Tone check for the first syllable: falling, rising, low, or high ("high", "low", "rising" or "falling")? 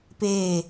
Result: falling